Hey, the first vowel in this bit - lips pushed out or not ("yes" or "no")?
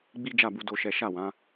no